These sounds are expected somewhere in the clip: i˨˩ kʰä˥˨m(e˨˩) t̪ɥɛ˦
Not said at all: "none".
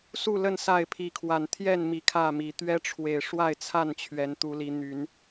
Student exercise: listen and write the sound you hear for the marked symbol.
i˨˩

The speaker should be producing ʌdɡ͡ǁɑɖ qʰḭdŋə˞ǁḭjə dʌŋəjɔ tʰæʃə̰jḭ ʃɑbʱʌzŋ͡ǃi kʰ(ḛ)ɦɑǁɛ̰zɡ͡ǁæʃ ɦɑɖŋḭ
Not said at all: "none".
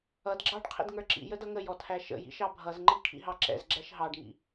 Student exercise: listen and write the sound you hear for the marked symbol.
ḭ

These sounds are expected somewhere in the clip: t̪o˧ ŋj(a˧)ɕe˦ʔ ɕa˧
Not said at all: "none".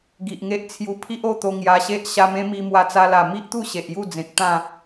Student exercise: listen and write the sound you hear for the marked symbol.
a˧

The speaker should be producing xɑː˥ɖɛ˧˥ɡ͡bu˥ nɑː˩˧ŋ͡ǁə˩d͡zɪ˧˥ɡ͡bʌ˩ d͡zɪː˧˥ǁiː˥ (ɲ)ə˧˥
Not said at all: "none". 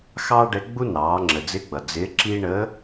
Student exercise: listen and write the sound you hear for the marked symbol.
ɳ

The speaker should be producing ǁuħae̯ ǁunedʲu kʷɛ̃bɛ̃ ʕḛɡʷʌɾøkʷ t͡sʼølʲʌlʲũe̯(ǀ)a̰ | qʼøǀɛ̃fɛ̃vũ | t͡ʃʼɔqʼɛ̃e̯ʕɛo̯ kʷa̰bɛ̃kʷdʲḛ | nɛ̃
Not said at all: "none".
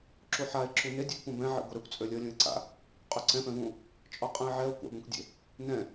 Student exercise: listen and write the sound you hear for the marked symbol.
ǀ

